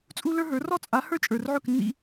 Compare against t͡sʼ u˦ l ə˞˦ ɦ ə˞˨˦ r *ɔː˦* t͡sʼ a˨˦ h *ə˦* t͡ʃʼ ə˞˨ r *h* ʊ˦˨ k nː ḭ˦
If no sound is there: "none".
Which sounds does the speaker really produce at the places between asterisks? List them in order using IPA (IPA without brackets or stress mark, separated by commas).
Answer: ɔ˦, ə˞˦, ʕ